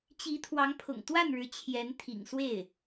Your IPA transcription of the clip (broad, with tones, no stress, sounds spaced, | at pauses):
t͡ɕ i˧˥ t̪ʰ w ɑ˧˥ ŋ pʰ ʊ̰˨˩ ŋ t̪ w a˥˩ n ɻ ɻ̩˧˥ t͡ɕʰ j ɛ˧˥ n t̪ʰ ḭ˨˩ ŋ s w e˥˩ ɪ̯